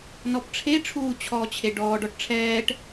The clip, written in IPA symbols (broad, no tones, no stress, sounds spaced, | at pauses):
n ɔ p ʈ͡ʂʰ e ʈ͡ʂʰ uː t͡ɕʰ ɔː t͡ɕʰ e ɖ ɔː ɖ ɔ ʈ ʈ͡ʂʰ ɛː ʈ